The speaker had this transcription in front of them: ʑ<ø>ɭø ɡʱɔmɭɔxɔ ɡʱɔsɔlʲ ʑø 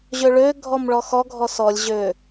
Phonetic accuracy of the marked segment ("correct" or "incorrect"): correct